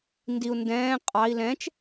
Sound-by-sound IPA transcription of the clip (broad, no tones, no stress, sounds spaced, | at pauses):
n d i u̯ n d ɛ̃ː qʼ ɑ i̯ l ɛ̃ t͡ʃ